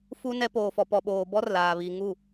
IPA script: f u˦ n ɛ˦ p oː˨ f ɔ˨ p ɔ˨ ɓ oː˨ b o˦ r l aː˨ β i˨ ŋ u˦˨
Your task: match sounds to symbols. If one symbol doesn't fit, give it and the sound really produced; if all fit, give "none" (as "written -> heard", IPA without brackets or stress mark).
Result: o˦ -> ɔ˦